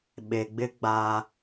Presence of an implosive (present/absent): present